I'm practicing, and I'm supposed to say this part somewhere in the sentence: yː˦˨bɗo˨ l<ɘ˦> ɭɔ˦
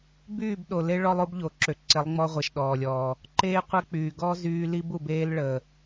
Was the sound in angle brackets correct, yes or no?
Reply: no